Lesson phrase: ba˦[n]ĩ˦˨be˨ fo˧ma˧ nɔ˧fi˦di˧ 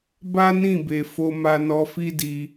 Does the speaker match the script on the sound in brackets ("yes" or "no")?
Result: yes